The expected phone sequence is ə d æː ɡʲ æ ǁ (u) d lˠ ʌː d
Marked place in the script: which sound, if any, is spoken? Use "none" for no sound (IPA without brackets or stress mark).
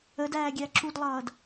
u